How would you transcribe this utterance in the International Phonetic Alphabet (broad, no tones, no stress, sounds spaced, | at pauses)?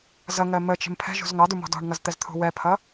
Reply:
z ʌ ŋ ɜ m ə t͡ʃ ə̤ m pʰ ɛ̤ ʒ ṳ z ŋ ɑ d u m ɔ̤ d ɔ̤ ɳ ŋ ʌ z t̪ ɛ z t̪ʰ ṳ w ɛ pʰ ʌ